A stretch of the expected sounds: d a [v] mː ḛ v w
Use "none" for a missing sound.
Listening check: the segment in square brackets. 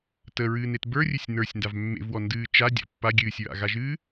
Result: v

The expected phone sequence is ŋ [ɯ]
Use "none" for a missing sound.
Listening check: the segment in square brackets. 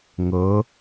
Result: ɤ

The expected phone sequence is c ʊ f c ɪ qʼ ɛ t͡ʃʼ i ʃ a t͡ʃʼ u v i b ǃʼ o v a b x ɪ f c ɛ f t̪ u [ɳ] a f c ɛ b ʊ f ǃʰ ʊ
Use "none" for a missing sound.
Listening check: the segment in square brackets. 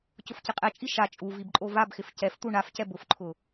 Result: ɳ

